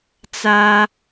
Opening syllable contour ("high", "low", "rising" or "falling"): high